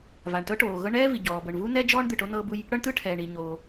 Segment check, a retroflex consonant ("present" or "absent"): present